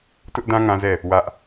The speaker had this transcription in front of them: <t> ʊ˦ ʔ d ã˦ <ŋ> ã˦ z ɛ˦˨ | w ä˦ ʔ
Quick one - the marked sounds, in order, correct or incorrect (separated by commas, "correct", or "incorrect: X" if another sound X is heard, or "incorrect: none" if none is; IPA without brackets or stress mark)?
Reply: correct, correct